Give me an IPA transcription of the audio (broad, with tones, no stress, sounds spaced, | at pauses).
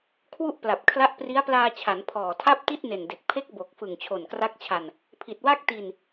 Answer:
kʰ w u˥˩ ʔ p l a˨˩ p̚ kʰ l a˦˥ ʔ p r i˦˥ a̯ p l aː˧ t͡ɕʰ a˩˦ n pʰ ɔː˨˩ tʰ a˥˩ p̚ t i˥˩ t̚ n e˨˩ n d e˨˩ k̚ pʰ e˦˥ k̚ b o˨˩ k̚ f ɯ˨˩ ŋ t͡ɕʰ o˨˩ n k r a˦˥ k̚ t͡ɕʰ a˧ n | pʰ i˨˩ t̚ w a˥˩ k̚ t i˧ n